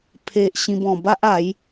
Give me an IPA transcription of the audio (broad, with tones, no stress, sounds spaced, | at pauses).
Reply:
pʰ e˨ ʔ ɕ ĩ˧ b ɔ̃˨˩ b a˦ ʔ a˨˦ j